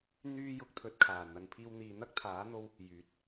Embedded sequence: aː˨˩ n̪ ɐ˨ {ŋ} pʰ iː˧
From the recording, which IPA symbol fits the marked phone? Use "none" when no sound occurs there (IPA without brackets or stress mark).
n